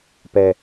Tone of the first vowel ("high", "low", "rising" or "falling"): high